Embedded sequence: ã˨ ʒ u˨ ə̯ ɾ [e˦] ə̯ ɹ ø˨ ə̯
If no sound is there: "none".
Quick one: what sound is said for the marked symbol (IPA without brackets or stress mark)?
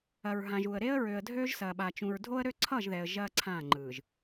e˦